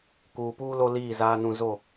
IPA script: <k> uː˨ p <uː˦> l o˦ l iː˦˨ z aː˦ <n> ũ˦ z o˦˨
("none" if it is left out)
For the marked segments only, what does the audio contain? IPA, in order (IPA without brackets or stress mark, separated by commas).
k, uː˦, n